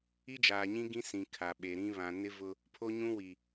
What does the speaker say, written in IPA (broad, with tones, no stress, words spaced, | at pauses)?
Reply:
i˦d͡ʒaː˨ɲĩ˦ ɡĩ˦sĩ˨ kʰa˨ɓe˨ɾĩ˦ βã˨nɪ˦ vʊ˦ | pʰo˦ɲũ˦wi˨